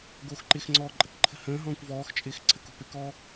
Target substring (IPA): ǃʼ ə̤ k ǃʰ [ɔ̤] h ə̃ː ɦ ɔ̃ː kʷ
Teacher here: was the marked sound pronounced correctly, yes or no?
no